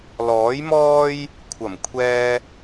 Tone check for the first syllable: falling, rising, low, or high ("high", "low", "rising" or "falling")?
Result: rising